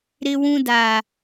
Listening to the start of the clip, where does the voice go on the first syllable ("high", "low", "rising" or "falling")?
high